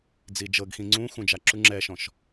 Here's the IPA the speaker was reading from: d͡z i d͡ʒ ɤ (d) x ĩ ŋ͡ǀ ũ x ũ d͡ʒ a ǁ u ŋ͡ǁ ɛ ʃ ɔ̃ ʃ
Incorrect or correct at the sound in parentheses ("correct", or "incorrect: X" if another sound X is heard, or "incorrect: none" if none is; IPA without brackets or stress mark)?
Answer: incorrect: ɡ